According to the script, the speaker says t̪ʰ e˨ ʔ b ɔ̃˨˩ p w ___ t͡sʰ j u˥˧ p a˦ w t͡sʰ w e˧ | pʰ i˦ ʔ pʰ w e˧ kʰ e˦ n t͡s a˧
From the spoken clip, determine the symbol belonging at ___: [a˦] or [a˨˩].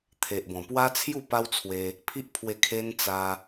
a˦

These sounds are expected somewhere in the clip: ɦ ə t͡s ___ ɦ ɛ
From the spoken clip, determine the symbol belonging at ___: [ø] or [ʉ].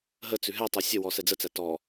ʉ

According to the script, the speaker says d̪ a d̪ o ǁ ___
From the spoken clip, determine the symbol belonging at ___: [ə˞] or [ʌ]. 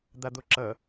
ʌ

